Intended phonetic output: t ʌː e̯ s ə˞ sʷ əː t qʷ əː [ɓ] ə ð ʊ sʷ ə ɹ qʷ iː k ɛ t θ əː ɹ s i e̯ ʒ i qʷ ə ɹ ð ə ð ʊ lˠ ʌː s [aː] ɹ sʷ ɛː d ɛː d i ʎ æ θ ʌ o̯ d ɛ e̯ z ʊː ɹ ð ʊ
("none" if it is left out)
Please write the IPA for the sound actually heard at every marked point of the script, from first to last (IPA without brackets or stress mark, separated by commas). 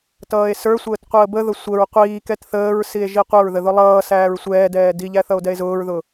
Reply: b, æː